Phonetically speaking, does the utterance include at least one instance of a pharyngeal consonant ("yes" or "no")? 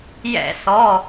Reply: no